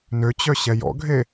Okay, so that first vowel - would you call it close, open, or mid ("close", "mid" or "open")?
mid